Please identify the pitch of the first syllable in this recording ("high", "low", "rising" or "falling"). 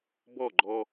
falling